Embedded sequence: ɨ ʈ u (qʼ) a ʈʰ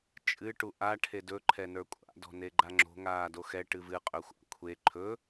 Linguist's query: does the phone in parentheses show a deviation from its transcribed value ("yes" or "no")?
yes